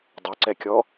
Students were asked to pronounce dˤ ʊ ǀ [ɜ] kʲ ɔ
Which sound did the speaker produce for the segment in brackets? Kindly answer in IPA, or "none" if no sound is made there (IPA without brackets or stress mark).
ɛ